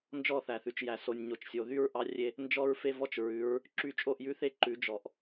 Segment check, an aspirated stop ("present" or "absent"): absent